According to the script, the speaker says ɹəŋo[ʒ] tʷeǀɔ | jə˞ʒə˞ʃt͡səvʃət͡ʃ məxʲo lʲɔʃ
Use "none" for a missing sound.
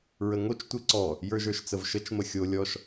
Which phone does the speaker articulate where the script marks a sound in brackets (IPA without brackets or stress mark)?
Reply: t͡ʃ